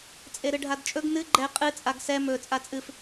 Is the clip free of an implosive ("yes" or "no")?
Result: yes